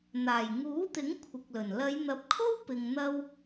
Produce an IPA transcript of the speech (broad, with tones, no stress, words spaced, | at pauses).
n̪aː˨˩jŋuː˨˥t̪ɪ˨˥ŋ kʷʰɪ˨k̚lɵ˨˩n lɐ˨˧jn̪ɐ˨˥p̚kʰo˥w pɪ˧ŋ n̪ɐ˥w